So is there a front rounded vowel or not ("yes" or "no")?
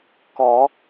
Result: no